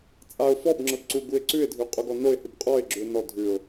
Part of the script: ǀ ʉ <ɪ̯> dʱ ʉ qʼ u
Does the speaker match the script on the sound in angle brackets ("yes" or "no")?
yes